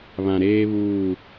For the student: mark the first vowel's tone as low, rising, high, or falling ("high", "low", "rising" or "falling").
low